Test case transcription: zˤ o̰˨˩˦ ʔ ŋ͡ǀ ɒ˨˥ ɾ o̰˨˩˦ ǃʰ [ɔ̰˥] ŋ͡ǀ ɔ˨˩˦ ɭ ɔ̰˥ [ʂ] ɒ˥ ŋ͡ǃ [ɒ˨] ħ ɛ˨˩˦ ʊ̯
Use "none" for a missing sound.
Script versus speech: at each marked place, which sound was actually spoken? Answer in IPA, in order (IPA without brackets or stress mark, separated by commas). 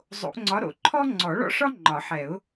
ɔ˥, ʂ, ɒ˨˩˦